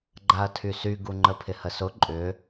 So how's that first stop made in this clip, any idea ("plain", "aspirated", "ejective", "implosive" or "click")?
click